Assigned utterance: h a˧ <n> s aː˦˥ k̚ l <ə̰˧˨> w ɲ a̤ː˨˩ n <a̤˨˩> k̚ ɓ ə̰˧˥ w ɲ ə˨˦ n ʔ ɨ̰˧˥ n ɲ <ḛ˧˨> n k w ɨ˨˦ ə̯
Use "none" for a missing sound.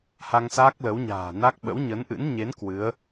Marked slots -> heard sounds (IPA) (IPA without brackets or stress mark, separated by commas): ŋ, ə˨˦, a˦˥, e˨˦